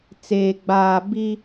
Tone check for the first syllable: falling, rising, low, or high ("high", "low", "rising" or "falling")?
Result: low